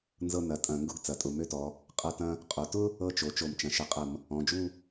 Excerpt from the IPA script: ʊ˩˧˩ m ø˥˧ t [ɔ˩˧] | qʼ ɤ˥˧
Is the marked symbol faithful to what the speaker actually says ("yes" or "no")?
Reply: yes